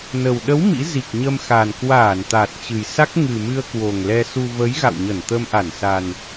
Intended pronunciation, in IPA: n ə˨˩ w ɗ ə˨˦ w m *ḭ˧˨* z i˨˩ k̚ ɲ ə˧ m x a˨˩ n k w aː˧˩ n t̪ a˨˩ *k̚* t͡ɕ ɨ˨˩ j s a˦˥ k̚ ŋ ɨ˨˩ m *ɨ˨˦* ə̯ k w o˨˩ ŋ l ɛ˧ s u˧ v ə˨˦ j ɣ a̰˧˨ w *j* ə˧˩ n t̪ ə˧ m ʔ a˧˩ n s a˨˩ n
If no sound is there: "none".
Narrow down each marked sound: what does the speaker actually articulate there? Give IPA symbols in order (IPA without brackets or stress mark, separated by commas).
ḭ˧˥, t̚, ɨ˧, ɲ